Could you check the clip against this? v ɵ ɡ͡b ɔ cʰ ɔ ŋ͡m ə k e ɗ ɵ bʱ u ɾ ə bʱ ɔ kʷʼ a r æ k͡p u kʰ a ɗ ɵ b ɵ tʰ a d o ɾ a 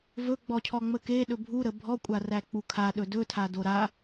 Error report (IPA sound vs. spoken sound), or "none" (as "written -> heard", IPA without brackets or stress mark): b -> d